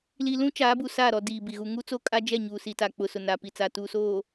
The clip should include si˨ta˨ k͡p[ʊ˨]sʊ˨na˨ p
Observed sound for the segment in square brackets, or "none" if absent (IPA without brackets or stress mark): ʊ˨